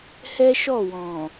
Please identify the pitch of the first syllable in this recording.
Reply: high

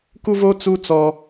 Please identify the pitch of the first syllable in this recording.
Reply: high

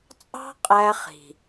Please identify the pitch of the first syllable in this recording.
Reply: high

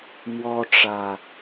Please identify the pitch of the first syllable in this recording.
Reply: high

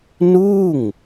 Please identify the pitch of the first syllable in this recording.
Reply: falling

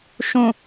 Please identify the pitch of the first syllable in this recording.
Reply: low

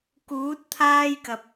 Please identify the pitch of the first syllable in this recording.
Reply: rising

